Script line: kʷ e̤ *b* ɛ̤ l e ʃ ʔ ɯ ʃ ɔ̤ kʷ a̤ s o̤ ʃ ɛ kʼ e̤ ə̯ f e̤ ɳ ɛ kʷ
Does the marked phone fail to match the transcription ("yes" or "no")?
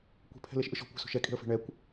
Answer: yes